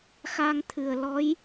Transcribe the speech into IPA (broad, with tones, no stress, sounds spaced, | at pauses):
x a˧ ŋ t̪ʰ ɨ˨˩ ə̯ l ɔ˧˥ j